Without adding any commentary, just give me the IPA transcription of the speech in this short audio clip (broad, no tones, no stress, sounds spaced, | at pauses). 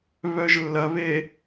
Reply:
β œ ʒ lː ɐ β e